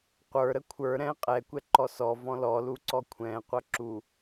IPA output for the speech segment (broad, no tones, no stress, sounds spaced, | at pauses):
qʷ ə˞ ɾ ə kʷʰ ə˞ ɾ ɛ̃ qʼ ɛ kʷ ɛ ǃ ɔ s ɔ v ɔ̃ l ɔ l u ǀ ɔ kʷʰ ɛ̃ qʷ ʌ ǁ u